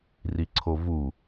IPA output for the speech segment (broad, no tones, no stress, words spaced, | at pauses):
riǀʰovu